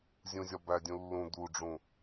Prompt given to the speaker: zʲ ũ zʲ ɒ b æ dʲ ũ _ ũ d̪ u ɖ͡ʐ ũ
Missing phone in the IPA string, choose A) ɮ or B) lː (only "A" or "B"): B